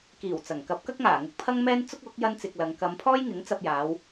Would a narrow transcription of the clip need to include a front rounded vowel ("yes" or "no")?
no